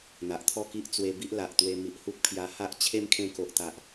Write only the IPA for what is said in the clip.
n̪ a˨ ʔ t̪ʰ ɔ˥˧ k i˦ ʔ t͡s w e˧ b i˦ ʔ l a˨ ʔ t̪ w e˧ m i˨ ʔ h u˦ k̚ pʰ j a˧ h a˦ ʔ t͡ɕʰ e˦ m kʰ ẽ˧ k o˨ ʔ t̪ a˨ ʔ

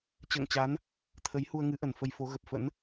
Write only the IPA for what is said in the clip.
t͡ɕ ə̰ː˧˨ ŋ t͡ɕ a˨˦ n | t̪ʰ ə˨˦ j h u˧ ə̯ ŋ ɨ˨˦ ʔ ə˧˩ n f ə˧ j f o˨˦ ɣ ə˨˩ p̚ f ə̰˧˥ n

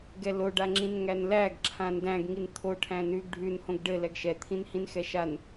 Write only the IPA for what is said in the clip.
ɡ ɛ l o ɖ a ŋ͡ǁ ĩ n ŋ æ n l æ ɡ ǁʰ ã n d æ̃ ɡ ŋ i n t̪ʰ o ʈʰ æ̃ n ʉ ɡ ɖʱ ʉ n h õ ɡ ɖ ɘ l ɛ ɡ ʃ ɛ t̪ʰ ĩ n h ĩ n x ɛ ʃ a n

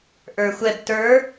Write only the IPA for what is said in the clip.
ʔ ə˞ xʷ ɛ b t ə˞

